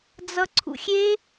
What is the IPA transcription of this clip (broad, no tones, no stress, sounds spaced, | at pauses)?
d͡z ʌ ǀʰ ṵ xʲ e